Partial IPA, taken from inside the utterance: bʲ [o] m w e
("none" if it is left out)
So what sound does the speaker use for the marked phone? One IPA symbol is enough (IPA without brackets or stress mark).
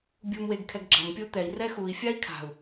u